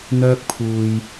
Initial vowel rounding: rounded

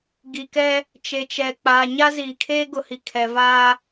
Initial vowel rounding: unrounded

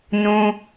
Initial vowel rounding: rounded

